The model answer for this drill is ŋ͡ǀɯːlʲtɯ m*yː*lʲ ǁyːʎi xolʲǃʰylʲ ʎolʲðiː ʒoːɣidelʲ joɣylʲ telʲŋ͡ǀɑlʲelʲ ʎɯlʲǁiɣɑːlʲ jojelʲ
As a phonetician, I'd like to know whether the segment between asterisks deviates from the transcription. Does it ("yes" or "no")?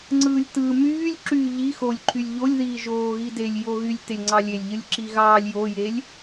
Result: no